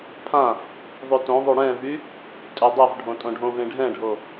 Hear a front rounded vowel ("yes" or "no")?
yes